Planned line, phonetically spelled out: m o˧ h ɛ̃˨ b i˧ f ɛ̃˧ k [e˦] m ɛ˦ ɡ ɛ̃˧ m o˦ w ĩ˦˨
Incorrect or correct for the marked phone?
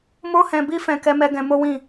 incorrect: ɛ˦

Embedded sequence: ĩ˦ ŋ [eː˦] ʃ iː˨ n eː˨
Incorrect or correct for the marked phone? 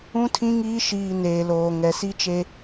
incorrect: iː˦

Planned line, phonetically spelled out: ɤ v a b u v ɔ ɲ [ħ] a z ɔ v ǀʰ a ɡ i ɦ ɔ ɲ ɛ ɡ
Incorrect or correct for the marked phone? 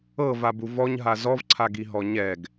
incorrect: ɦ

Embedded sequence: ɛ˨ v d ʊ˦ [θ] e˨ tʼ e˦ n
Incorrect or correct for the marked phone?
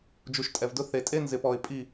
correct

